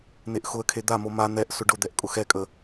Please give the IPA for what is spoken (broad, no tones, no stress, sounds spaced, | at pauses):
n̪ e ʔ x ʊ ə̯ kʰ e d̪ a m o m a n̪ ɛ ʔ s ʊ ɖ ʊ d̪ ɛ ʔ kʼ ʊ x ɛ kʼ ə